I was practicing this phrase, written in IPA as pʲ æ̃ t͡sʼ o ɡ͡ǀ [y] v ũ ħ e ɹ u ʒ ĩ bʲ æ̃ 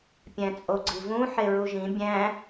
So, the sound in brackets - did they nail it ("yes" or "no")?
no